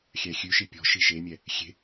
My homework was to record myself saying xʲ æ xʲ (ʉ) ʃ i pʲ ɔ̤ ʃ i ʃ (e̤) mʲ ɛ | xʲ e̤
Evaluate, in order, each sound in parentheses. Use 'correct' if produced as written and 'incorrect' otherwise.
correct, incorrect: e

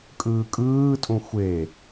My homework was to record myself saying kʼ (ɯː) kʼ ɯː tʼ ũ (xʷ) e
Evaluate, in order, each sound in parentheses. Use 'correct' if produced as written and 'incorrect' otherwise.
correct, correct

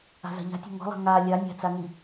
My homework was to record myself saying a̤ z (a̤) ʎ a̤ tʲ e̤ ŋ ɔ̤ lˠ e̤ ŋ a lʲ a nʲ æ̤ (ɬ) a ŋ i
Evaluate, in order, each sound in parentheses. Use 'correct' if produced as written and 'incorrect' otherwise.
correct, incorrect: t͡s

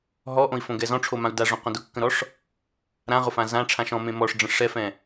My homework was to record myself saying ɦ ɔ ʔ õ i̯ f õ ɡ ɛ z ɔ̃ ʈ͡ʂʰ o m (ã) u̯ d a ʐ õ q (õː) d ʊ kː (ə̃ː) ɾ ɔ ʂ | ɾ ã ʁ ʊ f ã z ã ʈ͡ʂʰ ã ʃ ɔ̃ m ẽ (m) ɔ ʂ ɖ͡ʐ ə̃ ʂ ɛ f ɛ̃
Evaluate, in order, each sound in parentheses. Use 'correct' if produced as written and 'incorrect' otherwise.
correct, incorrect: õ, incorrect: ə̃, correct

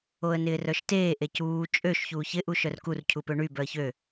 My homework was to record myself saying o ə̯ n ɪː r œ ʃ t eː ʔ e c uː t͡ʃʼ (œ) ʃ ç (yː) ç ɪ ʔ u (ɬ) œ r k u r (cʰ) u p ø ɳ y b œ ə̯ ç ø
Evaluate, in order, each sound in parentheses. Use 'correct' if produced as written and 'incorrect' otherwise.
incorrect: ø, incorrect: uː, incorrect: ʃ, correct

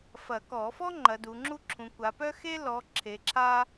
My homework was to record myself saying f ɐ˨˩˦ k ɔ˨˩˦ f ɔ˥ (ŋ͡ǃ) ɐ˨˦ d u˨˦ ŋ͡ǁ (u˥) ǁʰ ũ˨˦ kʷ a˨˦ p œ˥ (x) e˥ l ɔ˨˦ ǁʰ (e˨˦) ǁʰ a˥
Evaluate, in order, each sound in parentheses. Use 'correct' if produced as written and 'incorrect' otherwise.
correct, correct, correct, correct

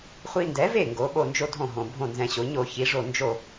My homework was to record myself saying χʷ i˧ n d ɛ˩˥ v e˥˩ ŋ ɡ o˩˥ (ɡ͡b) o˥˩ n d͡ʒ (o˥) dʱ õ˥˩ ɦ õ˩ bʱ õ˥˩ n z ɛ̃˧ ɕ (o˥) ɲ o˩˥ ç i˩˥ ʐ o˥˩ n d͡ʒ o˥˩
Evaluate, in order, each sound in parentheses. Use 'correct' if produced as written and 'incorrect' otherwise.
incorrect: ɓ, correct, incorrect: o˩˥

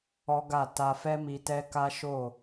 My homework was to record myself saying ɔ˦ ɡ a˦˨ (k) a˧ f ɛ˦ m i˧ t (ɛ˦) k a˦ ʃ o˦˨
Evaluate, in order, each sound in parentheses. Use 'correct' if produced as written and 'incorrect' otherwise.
incorrect: t, correct

